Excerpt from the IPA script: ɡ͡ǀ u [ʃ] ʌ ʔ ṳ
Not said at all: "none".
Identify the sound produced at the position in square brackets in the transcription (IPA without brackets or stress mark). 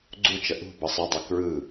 t͡ʃ